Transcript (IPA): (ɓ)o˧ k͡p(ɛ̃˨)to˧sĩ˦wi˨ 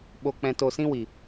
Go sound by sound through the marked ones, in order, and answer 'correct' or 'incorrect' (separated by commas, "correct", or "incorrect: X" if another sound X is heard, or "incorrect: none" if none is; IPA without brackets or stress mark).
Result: correct, incorrect: ɛ̃˧